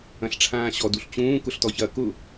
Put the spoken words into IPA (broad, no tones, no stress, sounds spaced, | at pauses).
ɐ̃ ɬ ʈ͡ʂʰ ãː ɕ ɔ d u ɬ t͡ɕ ũː k ʊ ɬ t ɔ ç ɐ k ʊ